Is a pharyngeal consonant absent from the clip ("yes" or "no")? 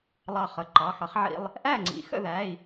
no